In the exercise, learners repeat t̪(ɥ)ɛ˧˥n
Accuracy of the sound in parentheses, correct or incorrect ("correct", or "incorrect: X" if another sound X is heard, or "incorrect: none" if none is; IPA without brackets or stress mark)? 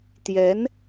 incorrect: j